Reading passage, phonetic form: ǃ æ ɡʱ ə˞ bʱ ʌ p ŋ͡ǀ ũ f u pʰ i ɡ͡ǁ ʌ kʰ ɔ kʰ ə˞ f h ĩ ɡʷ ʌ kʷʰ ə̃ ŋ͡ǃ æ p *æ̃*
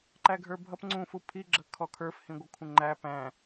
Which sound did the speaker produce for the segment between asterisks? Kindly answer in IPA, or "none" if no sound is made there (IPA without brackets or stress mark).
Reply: æ̃